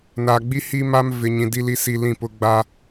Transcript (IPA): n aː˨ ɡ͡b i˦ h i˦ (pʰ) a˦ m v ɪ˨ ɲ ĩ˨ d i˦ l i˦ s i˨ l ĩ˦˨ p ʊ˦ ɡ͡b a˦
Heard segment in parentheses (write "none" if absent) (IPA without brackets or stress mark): m